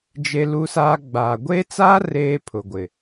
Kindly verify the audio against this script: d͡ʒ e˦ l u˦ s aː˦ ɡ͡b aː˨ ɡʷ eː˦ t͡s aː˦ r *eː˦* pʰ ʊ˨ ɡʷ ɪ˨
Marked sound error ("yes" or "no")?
no